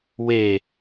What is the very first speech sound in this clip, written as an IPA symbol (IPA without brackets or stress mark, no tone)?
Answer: w